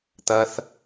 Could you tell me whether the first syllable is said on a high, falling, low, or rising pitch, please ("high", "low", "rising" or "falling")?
high